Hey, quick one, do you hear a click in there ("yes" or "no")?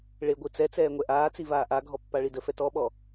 no